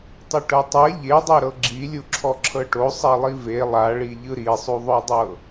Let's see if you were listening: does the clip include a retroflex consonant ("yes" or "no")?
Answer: yes